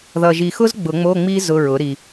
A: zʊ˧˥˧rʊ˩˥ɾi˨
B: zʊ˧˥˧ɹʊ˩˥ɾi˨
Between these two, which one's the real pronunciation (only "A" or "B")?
B